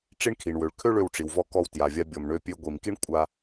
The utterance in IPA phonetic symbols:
ʈ͡ʂ i˥ ɳ kʰ i˩ ɳ w ø˩ ɭ kʰ ø˥ ɭ ø˧ w ʈ͡ʂ i˩ w v ɔ˧ k ɔ˧ w t j a˩ vʲ a˧ bʲ ɔ˩ m ɳ ø˧ pʲ ø˧ ɡʷ i˩ m k i˥ ɳ kʷʼ a˧

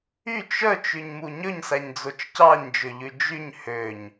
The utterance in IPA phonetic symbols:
y t͡ʃ œ t͡ʃ ʉ ɲ m u ɲ ɵ ɲ s æ ɲ d͡z o t͡ʃ c ɑ ɲ d͡ʒ ø ʎ ʉ d͡ʒ y ɲ h ø ɲ

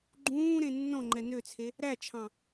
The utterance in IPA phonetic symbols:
ɡ͡ǃ ũː ɾ ẽ nː ɔ̃ ŋ͡ǃ ɛ n ø t͡sʰ e | ɾ æ t͡ʃʰ ɑ̃

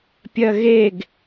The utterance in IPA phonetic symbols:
pʲ ɜ ɣ e ɡ

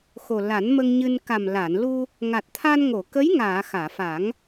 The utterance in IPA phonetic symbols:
x o˨˩ l a˨˩˦ n m ə˧ ŋ ɲ ɨ˧ n k a˨˩ m l a˨˩˨ n l u˧ | ŋ a˨˩ t̚ t̪ʰ a˧ n ŋ o˨˩˨ k ə˧˥ j ŋ aː˨˩˨ x aː˨˩˨ f a˨˩˦ ŋ

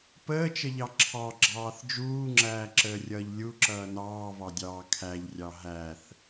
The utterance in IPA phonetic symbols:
p əː t͡ʃ ə ʎ ɑ ǁʰ ɑ ɡ͡ǁ ɑː θ d͡ʒ uː ŋ͡ǁ æː ǁ əː rʲ ʌː ʎ lʲ u ǁ ʌː n ɑː v ɑ dʲ ɑː kʰ æ ʎ rʲ ɑ ɦ æ θ

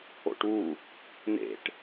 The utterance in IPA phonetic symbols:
o̰ ʈ u | n̪ ḛ ʈ

